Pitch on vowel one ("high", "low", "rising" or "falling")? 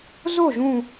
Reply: falling